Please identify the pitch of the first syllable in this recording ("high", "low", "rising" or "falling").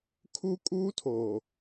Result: high